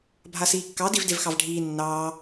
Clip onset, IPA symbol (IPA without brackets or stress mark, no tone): bʱ